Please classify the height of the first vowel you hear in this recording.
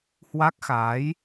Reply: low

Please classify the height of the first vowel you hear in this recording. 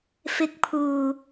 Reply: high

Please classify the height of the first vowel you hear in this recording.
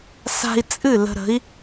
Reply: low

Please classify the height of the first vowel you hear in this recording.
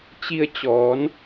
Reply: high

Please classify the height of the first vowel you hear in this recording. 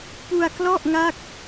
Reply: high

